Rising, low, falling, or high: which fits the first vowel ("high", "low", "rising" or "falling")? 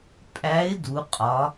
rising